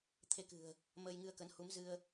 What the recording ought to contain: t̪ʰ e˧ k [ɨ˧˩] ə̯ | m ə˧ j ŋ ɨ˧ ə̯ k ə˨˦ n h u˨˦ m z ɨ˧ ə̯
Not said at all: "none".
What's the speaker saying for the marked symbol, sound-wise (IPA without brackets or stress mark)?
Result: ɨ̤˨˩